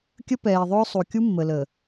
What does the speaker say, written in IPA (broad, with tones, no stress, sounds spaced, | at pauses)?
kʲ ə˦ p ɛː˨ ðˤ ʊː˦ sˤ u˨ kʲ u˦ mː ə˨ l ə˨